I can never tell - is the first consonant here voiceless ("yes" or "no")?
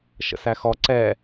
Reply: yes